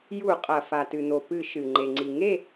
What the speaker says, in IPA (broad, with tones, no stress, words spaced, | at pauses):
ju˧˩˧qʼɐ˩ fa˩tɨ˩n̪o˩ pɨ˧˩˧ ʃɨ˩ ŋ͡ǃe˩ŋ͡ǀi˩ ŋe˥˨